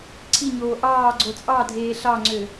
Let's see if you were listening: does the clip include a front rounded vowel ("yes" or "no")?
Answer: yes